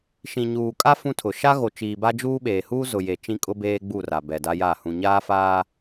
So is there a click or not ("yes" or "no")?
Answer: no